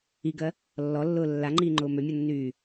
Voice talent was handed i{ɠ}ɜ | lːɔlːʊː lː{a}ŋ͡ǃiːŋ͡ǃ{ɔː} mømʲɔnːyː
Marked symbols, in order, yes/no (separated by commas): no, yes, no